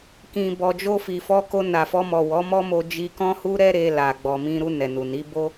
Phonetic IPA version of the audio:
kĩ˨bɔ˨d͡ʒo˧ fi˨fɔ˧ko˧ na˨fɔ˧mɔ˨ wɔ˨˦mɔ˦mo˧ d͡ʒi˧ kɔ̃˦hu˦ ɾɛ˦ɾe˧la˨ ɡ͡bɔ˨mĩ˧ɾu˧ nɛ˨nu˨ni˨˦ bo˧

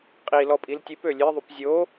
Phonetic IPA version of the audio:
qʼi lɔpʼiltʲep ølʲe ðˤupzʲo

